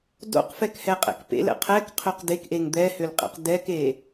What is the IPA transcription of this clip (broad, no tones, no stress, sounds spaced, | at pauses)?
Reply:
d o̰ q f ɛ k h ɛ qʼ ɛ̰ k p ḛ l ɛ̰ qʰ ɛ k qʰ ø q d e k ʔ e ŋ d̪ ɛ h ø l qʼ ḛ q d ɛ k e